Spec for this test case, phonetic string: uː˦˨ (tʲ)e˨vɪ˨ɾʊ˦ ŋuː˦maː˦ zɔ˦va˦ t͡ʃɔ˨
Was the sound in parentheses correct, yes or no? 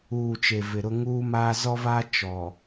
no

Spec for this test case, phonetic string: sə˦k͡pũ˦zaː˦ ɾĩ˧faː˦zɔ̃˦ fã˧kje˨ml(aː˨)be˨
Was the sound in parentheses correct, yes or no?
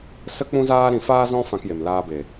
no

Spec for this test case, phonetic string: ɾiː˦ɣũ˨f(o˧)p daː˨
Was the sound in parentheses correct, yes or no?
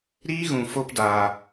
yes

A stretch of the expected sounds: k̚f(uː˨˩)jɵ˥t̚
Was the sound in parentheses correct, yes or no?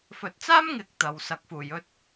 yes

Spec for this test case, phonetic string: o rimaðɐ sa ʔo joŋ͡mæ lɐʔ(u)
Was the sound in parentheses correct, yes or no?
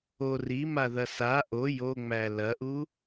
yes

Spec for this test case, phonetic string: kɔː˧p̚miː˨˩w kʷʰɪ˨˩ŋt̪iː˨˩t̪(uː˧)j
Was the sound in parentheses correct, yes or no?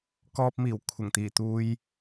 yes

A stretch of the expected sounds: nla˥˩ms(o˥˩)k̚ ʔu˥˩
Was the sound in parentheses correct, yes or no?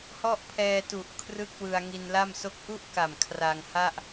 yes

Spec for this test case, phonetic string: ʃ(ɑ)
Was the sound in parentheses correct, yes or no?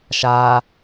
no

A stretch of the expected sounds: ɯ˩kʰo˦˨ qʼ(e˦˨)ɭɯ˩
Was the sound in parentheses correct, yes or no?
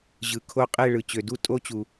yes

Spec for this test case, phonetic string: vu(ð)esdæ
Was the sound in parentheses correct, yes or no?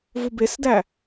no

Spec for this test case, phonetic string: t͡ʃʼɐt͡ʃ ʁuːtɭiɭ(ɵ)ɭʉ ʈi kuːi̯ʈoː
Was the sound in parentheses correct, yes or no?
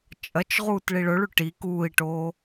yes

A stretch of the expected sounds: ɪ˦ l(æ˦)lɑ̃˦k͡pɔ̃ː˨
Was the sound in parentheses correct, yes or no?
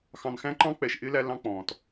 yes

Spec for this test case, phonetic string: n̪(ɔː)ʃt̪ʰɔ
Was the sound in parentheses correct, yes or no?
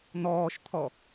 yes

